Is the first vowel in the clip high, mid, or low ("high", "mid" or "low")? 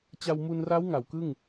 low